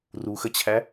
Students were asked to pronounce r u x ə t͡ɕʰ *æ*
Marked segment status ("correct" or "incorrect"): correct